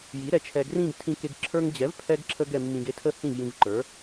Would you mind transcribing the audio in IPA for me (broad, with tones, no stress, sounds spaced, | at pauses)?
j i˩˥ ɾ ɛ˩˥ t͡ʃʰ ɛ˧ ɡ r ĩ˥˧ ɡ tʰ ĩ˧ k e˧ ɡ ǁʰ ə˞˧ ŋ d͡ʑ ɛ˩˥ v pʰ ɛ˧ ɡ ǁʰ ə˧ ɡ ɛ˧ mː ĩ˧ ɡ e˥˧ tʰ ə˥˧ h ĩ˥˩ v j ĩ˧ v ǃ ə˞˩˥